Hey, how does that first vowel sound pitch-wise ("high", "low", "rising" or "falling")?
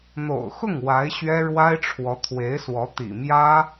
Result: low